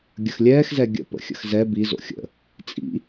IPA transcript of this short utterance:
ɡʲ ə x lʲ ɛː x z ɛ ɡʲ ə̰ p ə̰ xʲ ə̰ x z ɛ b i z o̰ xʲ ə̰ | t͡sʼ ḭ

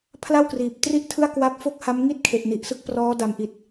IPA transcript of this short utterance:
pʰ l a˥˩ w k r iː˨˩ p̚ t r i˥˩ ʔ tʰ ɯ˥˩ a̯ k w a˦˥ p̚ f o˥˩ k̚ h a˦˥ m ŋ i˥˩ t̚ kʰ e˨˩ ʔ n i˨˩ ʔ s ɯ˦˥ k̚ p r ɔː˦˥ d a˨˩ m ʔ i˨˩ t̚

